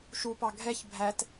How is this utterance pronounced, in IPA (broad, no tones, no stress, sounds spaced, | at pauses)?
ʃ u p ɑ ɡʱ ɛ ç bʱ æ t